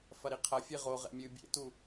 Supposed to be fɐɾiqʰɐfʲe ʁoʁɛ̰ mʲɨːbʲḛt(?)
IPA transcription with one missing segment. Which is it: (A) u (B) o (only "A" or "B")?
A